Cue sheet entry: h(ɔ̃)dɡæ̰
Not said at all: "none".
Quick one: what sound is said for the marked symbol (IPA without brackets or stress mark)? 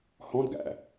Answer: ɔ̃